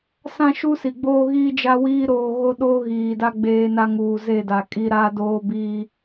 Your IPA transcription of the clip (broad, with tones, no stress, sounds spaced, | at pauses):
s ã˦ ʃ u˦ s i˨ ɡ͡b oː˦ ɣ iː˦ d͡ʒ a˦ w iː˦ ɾ oː˦ ɣ o˦ ɗ oː˦ ɣ iː˨ d a˦ ɡ͡b eː˦ n a˦ ŋ uː˨ z e˦˨ d a˨ kʼ i˦ ɾ a˦ d oː˦ b iː˦